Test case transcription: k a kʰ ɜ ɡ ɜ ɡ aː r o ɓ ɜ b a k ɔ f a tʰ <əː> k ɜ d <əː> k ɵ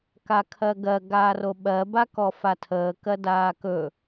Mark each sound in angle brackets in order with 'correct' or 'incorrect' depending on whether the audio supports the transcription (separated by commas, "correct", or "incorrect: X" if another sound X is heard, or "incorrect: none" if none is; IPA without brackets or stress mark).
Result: correct, incorrect: aː